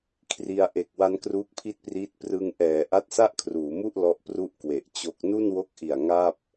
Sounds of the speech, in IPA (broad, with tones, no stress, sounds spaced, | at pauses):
kʰ r i˧ a̯ ʔ e˨˩ k̚ w a˦˥ n k r uː˦˥ k̚ pʰ i˥˩ t̚ p r iː˦˥ t̚ p r ɯ˧ ŋ ʔ ɛː˩˦ ʔ a˦˥ t̚ s a˥˩ ʔ kʰ r uː˩˦ m u˥˩ ʔ l ɔ˦˥ ʔ p r u˥˩ ʔ k w e˨˩ ʔ t͡ɕ o˦˥ k̚ n u˥˩ n w o˦˥ k̚ ʔ i˨˩ a̯ ŋ a˥˩ p̚